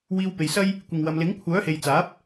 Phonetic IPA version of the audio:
wiː˧wpe˨jsɐ˥j | kʷɪ˨ŋwɐ˨mlɪ˨˥ŋ kʷʰœː˨˥he˨jt͡saː˨˥p̚

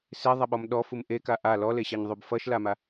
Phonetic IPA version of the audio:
seðˤʌɓɔm ɗɔfum ʔeka ʔa lɔleɕaɲðˤub fʌʃlama

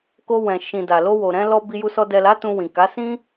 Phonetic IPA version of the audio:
ko˧ wɛ̃˨ ʃĩ˨da˨ lo˧wo˨ ɾɛ̃˧ lɔ˧ bi˧ju˧sɔ˧ dɛ˨la˨˦ tũ˧ wĩ˨ ka˨˦sĩ˦

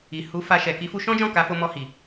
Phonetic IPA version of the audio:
i˨hu˨˦ fa˧ ʃɛ˨ ki˨˦fu˧ʃɔ̃˦d͡ʒɔ̃˦˨ ka˨˦fo˧mɔ˧hi˨

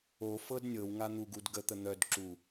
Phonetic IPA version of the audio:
ofɤd nʲɤwŋan̪uɡud ɡət̪ə n̪œdǁu

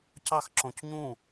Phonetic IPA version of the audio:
cɑx ǁõcɲũ

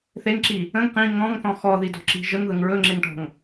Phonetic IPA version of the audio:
θeŋǁi | ə̃ŋ qĩ ŋɔ̃ŋθɔ̃ xɔðidɔ̤ǁi̤ ʒəŋðəŋ ɹɵŋ͡ǁeŋʈɔ̤ŋ

